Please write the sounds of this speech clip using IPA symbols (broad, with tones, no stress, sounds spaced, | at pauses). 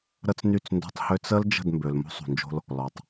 ɾ ə˦ t͡s n y˦˨ t͡s n d o̤˦ tˤ h ø˦ t͡s ə˦ l d͡ʒ ə̤˦˨ d m b ø˨ l m o̤˦ sˤ ṳ˨ n d͡ʒ o̤˦ l | l ɔ˨ tˤ